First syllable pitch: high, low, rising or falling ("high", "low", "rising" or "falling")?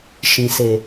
low